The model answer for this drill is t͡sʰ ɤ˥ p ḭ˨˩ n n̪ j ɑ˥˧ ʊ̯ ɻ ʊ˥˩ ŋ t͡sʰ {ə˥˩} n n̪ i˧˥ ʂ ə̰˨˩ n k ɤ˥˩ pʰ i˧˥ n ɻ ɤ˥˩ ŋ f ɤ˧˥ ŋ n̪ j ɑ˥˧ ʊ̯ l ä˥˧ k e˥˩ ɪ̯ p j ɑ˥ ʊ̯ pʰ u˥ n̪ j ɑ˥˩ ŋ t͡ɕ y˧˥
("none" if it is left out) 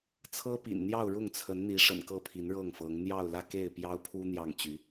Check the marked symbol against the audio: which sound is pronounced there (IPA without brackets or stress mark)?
ə˧˥